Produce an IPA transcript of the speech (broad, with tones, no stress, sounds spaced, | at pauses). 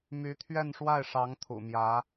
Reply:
m y˧˥ t̪ʰ ɥ ɛ˥˧ n ʂ w a˥˩ ɪ̯ ʂ ɑ˧˥ ŋ t̪ʰ ṵ˨˩ m j ä˧˥